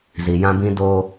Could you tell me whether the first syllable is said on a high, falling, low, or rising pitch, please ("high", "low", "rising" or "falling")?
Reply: low